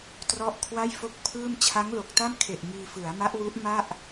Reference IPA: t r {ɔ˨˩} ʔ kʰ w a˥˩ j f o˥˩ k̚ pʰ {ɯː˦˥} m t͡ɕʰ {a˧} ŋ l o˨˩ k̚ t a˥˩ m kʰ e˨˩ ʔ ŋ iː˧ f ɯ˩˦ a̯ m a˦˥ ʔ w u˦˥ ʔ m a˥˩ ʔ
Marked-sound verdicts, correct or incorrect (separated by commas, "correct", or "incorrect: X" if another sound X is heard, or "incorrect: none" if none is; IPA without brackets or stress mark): incorrect: ɔ˦˥, incorrect: ɯː˥˩, incorrect: a˦˥